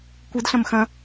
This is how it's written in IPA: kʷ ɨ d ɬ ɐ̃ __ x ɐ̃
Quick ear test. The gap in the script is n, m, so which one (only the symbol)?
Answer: m